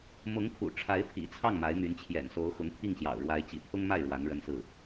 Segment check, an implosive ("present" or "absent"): absent